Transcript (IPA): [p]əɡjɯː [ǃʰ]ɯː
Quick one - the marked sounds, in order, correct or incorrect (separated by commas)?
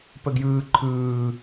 correct, correct